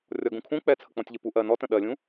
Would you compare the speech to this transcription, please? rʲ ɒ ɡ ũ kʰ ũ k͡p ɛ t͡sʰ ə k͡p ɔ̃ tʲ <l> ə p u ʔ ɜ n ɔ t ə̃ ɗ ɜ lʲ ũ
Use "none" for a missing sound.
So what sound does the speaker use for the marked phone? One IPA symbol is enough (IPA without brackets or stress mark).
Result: ʎ